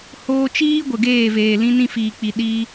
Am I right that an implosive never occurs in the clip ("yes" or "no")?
no